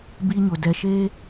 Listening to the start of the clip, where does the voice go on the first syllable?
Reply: high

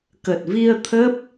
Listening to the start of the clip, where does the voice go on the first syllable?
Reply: low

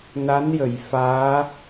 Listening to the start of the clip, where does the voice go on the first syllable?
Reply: rising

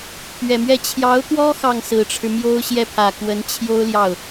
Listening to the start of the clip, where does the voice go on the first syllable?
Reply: low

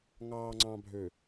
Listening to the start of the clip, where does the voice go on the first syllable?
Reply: low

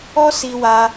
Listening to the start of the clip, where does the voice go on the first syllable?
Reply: high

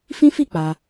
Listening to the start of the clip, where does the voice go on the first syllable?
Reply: high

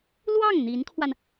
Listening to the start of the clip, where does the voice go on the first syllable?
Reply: falling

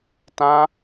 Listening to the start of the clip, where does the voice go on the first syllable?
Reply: high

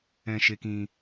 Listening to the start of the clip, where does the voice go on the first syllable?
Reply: low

